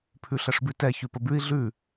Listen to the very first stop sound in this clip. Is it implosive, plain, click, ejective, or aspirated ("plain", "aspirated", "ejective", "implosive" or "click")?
aspirated